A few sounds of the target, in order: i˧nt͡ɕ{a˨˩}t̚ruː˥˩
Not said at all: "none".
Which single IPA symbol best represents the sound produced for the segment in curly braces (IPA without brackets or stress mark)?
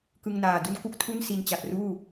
a˨˩